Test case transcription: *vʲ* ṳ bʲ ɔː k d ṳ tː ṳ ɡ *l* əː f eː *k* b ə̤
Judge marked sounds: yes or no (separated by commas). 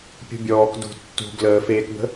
no, yes, yes